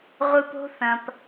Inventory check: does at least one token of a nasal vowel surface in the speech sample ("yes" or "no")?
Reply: yes